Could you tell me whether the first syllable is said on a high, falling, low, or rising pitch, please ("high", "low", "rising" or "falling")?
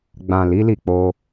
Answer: low